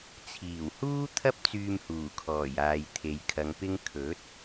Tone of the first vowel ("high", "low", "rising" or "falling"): low